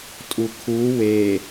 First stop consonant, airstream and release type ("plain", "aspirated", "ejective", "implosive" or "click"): ejective